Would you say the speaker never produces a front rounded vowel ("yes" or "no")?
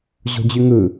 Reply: no